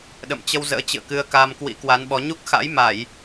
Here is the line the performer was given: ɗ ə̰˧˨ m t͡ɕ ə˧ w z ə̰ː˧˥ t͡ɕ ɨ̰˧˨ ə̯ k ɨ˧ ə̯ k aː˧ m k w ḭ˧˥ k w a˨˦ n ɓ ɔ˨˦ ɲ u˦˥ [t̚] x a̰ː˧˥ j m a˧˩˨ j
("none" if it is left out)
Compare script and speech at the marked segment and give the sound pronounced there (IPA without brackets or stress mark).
k̚